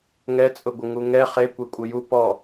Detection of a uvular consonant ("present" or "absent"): present